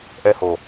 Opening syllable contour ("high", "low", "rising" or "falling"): high